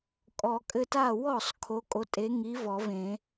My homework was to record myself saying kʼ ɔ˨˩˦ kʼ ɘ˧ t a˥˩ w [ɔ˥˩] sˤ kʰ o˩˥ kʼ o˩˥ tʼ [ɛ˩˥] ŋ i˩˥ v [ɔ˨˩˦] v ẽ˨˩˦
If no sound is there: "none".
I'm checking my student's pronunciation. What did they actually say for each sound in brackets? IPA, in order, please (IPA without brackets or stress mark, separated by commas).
ɔ˥˩, e˩˥, ɔ˨˩˦